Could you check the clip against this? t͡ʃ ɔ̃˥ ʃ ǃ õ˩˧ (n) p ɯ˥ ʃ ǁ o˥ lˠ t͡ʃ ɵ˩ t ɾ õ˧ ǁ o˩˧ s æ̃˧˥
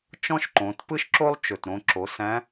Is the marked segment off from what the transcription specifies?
yes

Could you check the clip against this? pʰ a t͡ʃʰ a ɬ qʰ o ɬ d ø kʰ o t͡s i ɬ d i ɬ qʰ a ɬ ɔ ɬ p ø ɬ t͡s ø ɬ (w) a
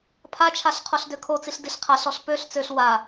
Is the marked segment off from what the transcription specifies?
no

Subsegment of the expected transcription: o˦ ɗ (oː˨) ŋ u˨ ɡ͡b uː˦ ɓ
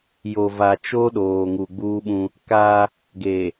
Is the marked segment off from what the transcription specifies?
no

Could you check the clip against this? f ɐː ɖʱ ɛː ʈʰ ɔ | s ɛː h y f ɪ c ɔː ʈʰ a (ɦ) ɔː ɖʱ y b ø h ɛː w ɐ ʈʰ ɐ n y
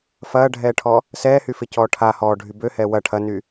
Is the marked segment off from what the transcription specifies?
yes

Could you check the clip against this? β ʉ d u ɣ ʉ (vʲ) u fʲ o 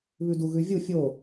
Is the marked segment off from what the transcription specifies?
no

